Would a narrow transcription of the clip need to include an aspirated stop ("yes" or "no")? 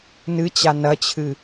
yes